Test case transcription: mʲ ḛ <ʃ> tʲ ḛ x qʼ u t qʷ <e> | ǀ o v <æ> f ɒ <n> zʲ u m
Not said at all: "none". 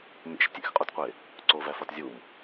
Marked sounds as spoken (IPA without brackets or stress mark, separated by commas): ʃ, e, æ, t